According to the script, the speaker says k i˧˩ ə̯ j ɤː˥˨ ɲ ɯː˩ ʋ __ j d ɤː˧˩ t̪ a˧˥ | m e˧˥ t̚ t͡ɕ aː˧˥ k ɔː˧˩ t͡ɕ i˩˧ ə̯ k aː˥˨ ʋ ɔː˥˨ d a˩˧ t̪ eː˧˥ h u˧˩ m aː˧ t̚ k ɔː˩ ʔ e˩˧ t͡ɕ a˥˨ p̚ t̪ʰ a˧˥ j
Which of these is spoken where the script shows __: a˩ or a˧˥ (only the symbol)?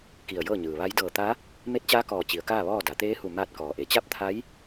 a˧˥